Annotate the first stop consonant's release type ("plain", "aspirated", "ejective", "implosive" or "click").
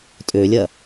ejective